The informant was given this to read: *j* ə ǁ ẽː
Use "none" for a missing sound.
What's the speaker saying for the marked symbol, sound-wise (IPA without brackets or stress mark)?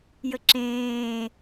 j